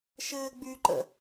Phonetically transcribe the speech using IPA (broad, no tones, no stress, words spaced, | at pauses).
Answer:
ʃɘːɡ͡byǃə̰